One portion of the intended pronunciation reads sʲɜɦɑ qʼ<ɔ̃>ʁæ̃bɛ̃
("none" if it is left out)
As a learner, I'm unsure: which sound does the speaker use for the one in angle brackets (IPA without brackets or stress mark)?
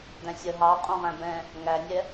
õ